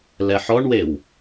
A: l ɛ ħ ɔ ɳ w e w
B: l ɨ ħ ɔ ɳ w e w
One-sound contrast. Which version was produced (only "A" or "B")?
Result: A